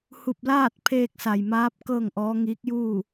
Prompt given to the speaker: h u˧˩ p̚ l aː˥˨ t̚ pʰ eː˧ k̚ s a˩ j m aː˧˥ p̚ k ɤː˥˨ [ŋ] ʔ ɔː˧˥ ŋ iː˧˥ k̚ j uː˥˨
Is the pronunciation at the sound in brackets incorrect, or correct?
correct